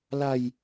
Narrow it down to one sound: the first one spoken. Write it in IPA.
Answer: l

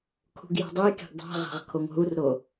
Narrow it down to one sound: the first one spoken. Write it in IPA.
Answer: kʰ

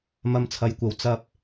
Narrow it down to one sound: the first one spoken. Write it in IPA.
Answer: m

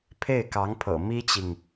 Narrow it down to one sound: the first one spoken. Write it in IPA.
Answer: pʰ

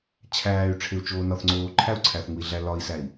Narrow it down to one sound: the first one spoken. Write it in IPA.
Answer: t͡ɕʰ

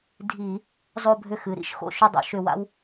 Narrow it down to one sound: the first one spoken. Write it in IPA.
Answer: dʱ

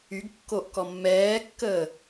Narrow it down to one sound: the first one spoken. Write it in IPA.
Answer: y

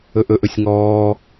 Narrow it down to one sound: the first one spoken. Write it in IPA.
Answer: ɵ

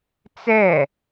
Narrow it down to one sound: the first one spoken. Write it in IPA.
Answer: t͡s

